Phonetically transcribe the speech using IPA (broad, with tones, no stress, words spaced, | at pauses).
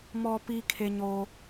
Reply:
mɔ˨pi˨ kʰe˨ɲo˨